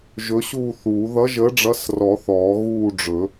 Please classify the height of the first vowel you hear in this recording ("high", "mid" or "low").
mid